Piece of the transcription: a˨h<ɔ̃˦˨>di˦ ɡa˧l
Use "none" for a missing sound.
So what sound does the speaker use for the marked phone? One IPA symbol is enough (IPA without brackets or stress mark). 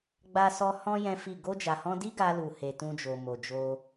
ɔ̃˧